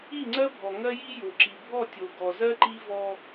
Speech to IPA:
i˦˨ ŋ͡ǀ ɜ˦ bʱ ɔ˨ ŋ ɜ˦ j i˦ j o˨ ǁ i˨ bʱ ɔ˦˨ tʲ o˨ ɡ ɔ˨ z ɜ˦ ǃ i˦ v ɔ˦

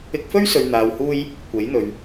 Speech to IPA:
ɪ˧ k̚ f ɵ˥ ɥ s ɵ˨ ɥ n̪ aː˨ w h uː˧ j | kʷ e˨˥ j n̪ ɵ˨ ɥ

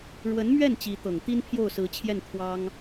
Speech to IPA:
ɻ w ə˧˥ n m ɥ ɛ˥˩ n t͡ɕ i˧˥ t̪ ɤ˨˩ ŋ t̪ i˥ n pʰ j o˥˩ ʊ̯ s ɹ̩˧˥ t͡ɕʰ j ɛ˥˩ n t̪ʰ w ɑ˥ ŋ

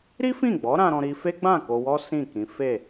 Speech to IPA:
ɾ i˦ f ĩ˦˨ ɡ͡b ɔ˨˦ ɾ ã˧ ɾ ɔ̃˧ ɾ i˦ f e˦ ɡ͡b ã˦˨ k o˧ w ɔ˦ s ĩ˦˨ k ĩ˨˦ f e˦˨

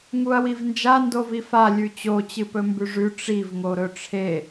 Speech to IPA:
ŋ u ɐ̯ w i v n d͡ʒ a n d o v i f a lʲ ʉ t͡ɕ o t͡ɕ ɨ p ɵ m b ʉ ʐ ʉ ʈ͡ʂ i v ŋ o ɾ ɵ ʈ͡ʂʰ e

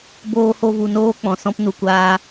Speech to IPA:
b oː˦ h o˦ v u˧ n oː˦ k͡p ɔ̃˨ s ɔ̃˦ p n u˧ kʷ aː˦

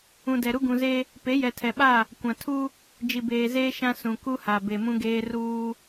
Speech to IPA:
ũ˨ d ɛ˨ ɾ u˦ ɡ ũ˨ z e˦ | p e˨˦ j ɛ˨ tʰ ɛ˨ ɓ a˦˨ | kʷ ã˨ tʰ u˦ | d͡ʒ i˨ b eː˨ z eː˦ ʃ ã˦ s ũ˨ k u˦ h a˨ b e˨ m ũ˦ ɡ eː˦ r uː˦

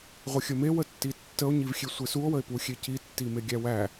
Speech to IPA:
ʁʷ ə xʲ ə m e w ə tː i tː ə o̯ ɲ i v xʲ e sʷ e s u o̯ w ə e̯ p u xʲ e c i tː i m e ɡʲ æ w æ

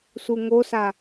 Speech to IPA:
s u ŋ o s a

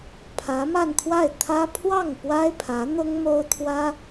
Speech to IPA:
pʰ ä˧˥ m a˥˧ n t̪ʰ w a˥˩ ɪ̯ t̪ʰ ä˥ pʰ w ɑ˥˩ ŋ p w a˥ ɪ̯ pʰ ä˧˥ n̪ ʊ˥ ŋ m o˥ ʊ̯ t̪ʰ w ä˥

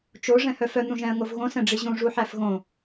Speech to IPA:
t͡ʃ o ʐ ɛ̃ h œ f œ n̪ ũ ʒ ɛ̃ ə̯ ŋ o v ɣ õ s ɛ̃ ɖ͡ʐ i ʑ ũ ʐ u ħ æ f ɣ õ

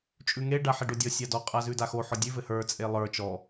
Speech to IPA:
t͡ʃʼ ʉ ŋ e ɖ a ħ e ɖ o dʲ ɔ sʲ a d ɔ qʼ a z ʉ d a x o ħ ɔ dʲ ʉ v ɘ h ə˞ t͡sʼ e lˠ ə˞ t͡ʃ ɔ

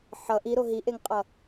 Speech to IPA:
ħ ʌ ʔ i ɾ o ɦ i ʔ e ŋ qʼ ʌ

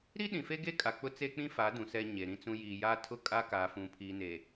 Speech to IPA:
ɾ i˦ ɗ ĩ˨ f e˦ ɡ e˦ kʼ a˨ k͡p ʊ˦ t͡s e˦ k͡p ĩ˦ f a˨˦ d ũ˨ s ɛ˦ ɲ e˨ ɾ ĩ˦ t͡s ũ˦ j iː˨ j aː˦ tʰ ʊ˦ kʼ a˦ k aː˨ f ũ˨ pʰ iː˨ n e˨

